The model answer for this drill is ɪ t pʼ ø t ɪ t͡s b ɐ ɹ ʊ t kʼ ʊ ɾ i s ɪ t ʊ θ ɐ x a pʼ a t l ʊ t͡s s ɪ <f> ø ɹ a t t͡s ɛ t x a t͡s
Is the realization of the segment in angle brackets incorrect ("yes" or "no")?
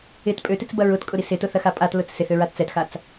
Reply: yes